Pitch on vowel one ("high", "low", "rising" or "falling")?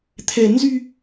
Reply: low